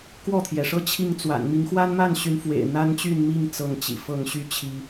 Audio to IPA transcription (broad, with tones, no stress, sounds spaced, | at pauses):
k w ɔ˥˨ t̪ʰ j ɛ˩ ʂ ɤ˦ t͡ɕʰ i˥˨ ŋ t͡s w a̰˨˩ n m i˨˦ ŋ x w a˦ n m a˥˨ n ɕ y˨˦ n f w ḛ˨˩ ɪ̯ n̪ a˦ n t͡ɕ y˥˨ n m i˥˨ ŋ t͡s ɤ˥˨ ŋ t͡ɕ ḭ˨˩ f ɤ˥˨ ŋ ɕ y˥˨ t͡ɕʰ i˨˦